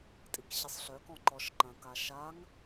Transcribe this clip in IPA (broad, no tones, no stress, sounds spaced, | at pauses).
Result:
tʼ i k ɕ ɪ sˤ ɬ œ k ɔ̃ ǃ ɔ ʃ ǃ ɐ̃ k a ʃ a ŋ